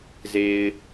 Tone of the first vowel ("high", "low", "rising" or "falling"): low